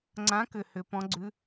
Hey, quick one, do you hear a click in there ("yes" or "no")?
yes